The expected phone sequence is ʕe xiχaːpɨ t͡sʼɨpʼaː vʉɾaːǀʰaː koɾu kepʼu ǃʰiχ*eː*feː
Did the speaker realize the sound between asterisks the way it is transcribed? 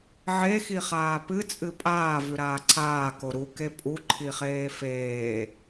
yes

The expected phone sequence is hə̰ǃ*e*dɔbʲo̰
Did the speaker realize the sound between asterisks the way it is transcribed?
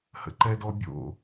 no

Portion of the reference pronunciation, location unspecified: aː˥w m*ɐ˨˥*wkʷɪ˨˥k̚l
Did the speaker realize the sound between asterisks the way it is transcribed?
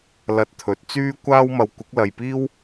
no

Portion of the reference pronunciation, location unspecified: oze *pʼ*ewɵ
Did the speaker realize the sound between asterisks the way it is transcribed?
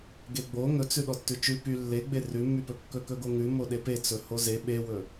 no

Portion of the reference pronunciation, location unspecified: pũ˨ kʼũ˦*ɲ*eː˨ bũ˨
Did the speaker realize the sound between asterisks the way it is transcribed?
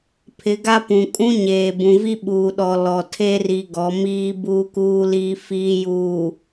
yes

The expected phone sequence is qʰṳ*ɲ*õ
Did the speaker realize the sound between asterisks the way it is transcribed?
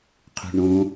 no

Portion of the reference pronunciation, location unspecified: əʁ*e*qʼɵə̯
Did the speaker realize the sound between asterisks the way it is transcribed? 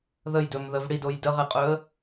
yes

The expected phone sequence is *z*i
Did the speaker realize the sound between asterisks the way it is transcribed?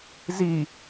yes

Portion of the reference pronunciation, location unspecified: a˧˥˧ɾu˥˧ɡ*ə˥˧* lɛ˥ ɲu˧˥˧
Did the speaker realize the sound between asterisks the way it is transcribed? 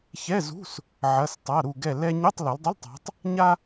no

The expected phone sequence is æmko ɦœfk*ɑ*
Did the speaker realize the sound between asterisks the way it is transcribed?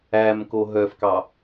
yes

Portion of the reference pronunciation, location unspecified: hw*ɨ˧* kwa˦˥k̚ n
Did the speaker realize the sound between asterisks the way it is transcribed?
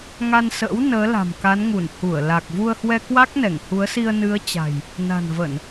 no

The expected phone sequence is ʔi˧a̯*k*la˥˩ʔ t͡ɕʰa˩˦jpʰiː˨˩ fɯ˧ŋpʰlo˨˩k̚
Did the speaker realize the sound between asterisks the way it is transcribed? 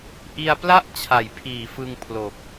no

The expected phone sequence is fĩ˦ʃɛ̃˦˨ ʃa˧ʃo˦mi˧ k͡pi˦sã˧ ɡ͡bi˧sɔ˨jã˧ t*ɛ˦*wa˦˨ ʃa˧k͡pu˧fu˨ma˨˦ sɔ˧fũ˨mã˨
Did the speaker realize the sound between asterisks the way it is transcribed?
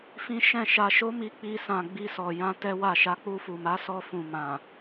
yes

